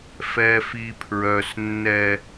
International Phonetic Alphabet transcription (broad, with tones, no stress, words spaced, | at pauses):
fɛ˨fi˨pʰɹœ˨s nːɛ˦